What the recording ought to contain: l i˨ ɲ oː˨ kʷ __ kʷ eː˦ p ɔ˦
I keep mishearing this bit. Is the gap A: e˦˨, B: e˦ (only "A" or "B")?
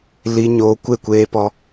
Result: A